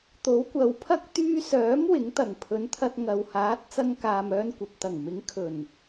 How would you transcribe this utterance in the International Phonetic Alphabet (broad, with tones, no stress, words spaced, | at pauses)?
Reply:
t̪o˨˥wkʷɐ˨wpʰɐ˥k̚ t̪yː˧sœː˨˥m wɪ˨˥ŋt̪ɐ˨˩ŋpʰɵ˨˥nt̪ʰɐ˧t̚ ŋɐ˨whaː˨˥t̚ t͡sɐ˧ŋkaː˨m œː˧nkʷɐ˨p̚t̪ɐ˨˩ŋmɪ˨˥ŋ kʰɵ˨˩n